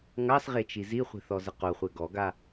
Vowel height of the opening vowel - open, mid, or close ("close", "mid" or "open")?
open